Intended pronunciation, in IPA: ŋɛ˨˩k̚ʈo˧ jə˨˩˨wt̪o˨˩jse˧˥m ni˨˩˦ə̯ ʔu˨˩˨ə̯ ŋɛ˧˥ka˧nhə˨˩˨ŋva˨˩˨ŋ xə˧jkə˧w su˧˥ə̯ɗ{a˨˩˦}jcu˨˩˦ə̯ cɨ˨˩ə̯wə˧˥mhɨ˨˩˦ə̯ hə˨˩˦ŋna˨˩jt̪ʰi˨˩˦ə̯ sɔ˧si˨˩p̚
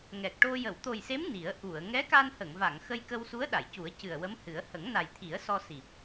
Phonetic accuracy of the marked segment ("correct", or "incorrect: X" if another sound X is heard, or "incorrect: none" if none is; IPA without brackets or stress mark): incorrect: a˨˩˨